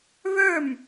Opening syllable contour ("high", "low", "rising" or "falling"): falling